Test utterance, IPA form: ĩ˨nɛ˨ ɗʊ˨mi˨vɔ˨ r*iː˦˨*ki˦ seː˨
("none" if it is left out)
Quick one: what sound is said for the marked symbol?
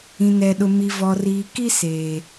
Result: iː˨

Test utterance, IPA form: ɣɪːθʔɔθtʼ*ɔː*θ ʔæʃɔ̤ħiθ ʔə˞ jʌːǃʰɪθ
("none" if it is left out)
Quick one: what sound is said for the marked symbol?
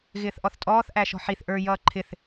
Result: ɔː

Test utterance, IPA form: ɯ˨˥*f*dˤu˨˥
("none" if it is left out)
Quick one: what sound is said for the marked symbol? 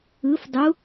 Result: f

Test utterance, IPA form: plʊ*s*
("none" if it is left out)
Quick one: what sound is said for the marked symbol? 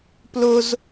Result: z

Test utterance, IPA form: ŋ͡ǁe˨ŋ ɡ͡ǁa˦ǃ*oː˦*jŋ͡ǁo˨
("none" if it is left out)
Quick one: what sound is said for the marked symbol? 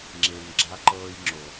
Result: ɤː˦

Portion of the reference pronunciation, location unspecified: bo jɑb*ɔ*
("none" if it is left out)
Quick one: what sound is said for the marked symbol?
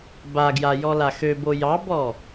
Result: ɔ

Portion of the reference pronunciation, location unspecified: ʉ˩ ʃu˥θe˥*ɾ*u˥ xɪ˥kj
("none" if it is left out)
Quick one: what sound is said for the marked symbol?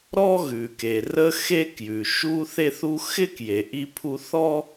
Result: θ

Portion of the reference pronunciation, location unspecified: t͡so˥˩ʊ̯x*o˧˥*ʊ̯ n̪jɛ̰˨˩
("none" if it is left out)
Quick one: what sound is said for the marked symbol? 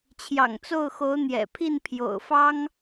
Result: o˧˥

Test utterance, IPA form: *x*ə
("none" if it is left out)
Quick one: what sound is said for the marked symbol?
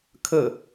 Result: kʰ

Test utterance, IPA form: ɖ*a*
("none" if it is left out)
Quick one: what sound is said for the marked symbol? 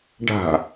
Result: a̤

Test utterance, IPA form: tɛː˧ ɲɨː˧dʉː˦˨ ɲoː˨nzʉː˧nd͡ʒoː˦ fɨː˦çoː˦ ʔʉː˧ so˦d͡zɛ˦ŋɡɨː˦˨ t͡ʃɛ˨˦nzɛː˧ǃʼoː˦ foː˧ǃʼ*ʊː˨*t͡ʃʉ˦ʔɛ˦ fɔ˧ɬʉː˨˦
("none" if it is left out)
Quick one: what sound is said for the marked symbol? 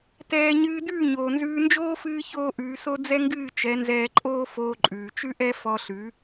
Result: ʉː˨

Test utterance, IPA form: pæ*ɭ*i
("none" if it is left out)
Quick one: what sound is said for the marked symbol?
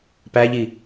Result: ʎ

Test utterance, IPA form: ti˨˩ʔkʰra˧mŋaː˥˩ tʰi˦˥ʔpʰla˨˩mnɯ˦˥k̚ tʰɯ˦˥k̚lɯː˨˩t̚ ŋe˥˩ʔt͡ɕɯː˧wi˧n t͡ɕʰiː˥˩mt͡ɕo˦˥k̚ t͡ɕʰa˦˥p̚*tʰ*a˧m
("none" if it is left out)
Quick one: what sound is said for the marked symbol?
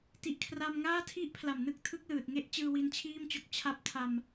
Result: tʰ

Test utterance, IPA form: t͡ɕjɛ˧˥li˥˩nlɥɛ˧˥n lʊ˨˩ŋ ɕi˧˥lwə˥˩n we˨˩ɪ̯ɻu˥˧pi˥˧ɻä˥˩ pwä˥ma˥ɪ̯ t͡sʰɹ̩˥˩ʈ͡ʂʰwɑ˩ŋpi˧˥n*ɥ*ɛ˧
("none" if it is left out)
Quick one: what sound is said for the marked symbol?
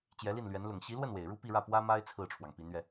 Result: ɥ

